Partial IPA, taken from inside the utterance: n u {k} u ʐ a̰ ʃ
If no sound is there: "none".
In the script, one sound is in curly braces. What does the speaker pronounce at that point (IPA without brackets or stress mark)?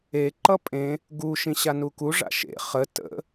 k